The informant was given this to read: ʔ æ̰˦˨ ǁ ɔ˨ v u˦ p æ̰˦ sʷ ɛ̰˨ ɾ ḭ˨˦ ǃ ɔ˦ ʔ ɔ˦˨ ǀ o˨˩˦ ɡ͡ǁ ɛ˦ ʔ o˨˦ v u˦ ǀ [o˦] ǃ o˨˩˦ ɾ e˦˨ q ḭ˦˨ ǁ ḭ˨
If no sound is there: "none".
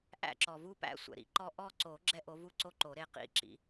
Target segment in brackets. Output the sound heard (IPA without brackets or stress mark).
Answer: o˦